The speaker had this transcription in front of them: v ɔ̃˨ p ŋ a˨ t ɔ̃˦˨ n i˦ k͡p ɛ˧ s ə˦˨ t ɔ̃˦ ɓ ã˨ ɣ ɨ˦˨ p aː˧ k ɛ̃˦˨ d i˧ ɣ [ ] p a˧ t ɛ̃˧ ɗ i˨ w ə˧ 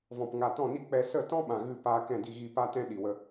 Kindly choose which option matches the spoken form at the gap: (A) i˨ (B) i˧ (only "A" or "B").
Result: B